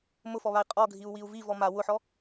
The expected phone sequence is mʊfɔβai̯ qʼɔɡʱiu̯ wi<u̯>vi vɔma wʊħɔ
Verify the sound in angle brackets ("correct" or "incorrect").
correct